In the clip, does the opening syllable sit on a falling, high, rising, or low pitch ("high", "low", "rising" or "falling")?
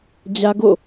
high